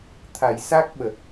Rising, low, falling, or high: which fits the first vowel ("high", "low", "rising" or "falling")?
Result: low